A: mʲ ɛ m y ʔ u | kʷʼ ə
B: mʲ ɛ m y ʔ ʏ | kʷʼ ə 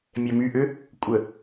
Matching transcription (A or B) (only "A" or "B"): B